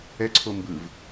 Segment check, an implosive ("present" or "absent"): absent